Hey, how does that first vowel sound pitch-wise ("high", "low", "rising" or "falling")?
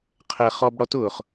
low